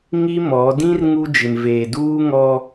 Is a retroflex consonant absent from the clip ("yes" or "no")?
yes